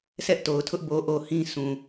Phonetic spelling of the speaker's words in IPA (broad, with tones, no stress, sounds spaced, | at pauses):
s ɛ˦ ʔ t o˨ ʊ̯ tʰ ʊ˦ ʔ b o˨ ʔ o˨ h ĩ˦ sʰ ũ˨